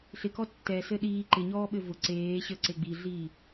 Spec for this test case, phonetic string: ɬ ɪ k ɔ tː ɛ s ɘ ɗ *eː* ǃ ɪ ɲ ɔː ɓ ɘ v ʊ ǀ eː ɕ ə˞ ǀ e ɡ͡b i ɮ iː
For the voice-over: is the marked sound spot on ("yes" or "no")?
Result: no